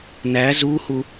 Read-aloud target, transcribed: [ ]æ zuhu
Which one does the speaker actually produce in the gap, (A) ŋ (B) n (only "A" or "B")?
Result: B